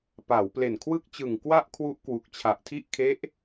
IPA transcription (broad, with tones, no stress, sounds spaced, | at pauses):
p aː˩˦ w p l e˨˩ n kʰ w ɯ˥˩ k̚ t͡ɕ ɯ˨˩ ŋ k w a˥˩ ʔ kʰ w u˦˥ ʔ k w u˨˩ k̚ t͡ɕʰ a˨˩ ʔ tʰ i˥˩ ʔ kʰ e˦˥ ʔ